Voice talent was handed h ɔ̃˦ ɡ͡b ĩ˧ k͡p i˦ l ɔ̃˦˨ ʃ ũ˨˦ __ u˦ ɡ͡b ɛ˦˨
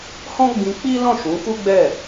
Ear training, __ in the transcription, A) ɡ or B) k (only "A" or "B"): B